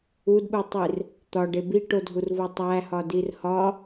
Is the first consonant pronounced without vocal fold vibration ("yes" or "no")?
no